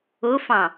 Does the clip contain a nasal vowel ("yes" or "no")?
yes